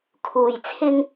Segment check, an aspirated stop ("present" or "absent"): present